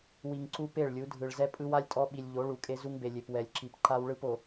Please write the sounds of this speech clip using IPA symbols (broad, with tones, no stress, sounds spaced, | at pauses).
w i˨ ŋ ǀ u˦ p e˦˨ ɭ lʲ u˨˦ dʱ ɯ˨ ɭ z ɛ˦ pʼ ɯ˦ w a˦ lʲ tʼ ɔ˦ ɓ i˨ lʲ ʎ o˨˦ ɭ u˨ kʼ e˦ z u˦ ŋ b e˨ lʲ e˨ p w ɛ˨ lʲ ǁ i˨ p ǃ a˦ w ɭ ɯ˦ p o˨